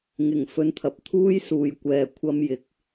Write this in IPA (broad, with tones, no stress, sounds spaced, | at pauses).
ŋ ɪ˨˩ ŋ f ɵ˧ n t̪ʰ ɐ˨ p̚ t̪ʰ uː˥ j s uː˨ j kʷ ɛː˨ kʷʰ ɐ˧ m j ɪ˨˥ k̚